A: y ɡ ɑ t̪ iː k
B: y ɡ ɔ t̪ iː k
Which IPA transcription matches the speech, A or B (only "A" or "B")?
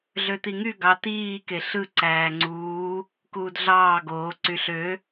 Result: A